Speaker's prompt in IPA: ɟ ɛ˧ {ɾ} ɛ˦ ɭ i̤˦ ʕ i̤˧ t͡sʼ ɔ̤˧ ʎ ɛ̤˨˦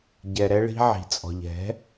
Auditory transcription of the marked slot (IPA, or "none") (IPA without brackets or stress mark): ɾ